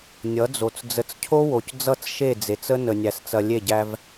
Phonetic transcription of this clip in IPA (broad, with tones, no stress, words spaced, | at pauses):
nʲʌ˨˦d͡zo˨t͡s d͡zə˨t͡scʰo˦wo˨c d͡zʌ˦˨t͡sʃe˦˨ d͡ze˨t͡sə˦ nə˨nʲæ˨st͡sɐ˨ lʲe˦˨ɟæ˦v